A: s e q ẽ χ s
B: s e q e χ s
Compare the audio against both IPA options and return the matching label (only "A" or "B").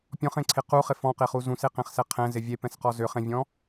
A